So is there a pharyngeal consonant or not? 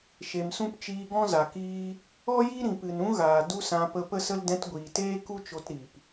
no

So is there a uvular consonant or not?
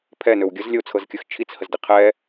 yes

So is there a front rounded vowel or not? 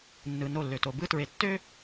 yes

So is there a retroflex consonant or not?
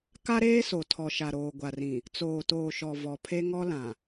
no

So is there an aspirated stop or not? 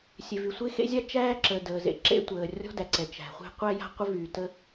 no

